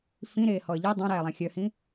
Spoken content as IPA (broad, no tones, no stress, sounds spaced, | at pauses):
f ĩ ɾ eː h ɔ ə̯ ʎ i dˤ ã ɾ æː lˠ ã xʲ œ h ĩ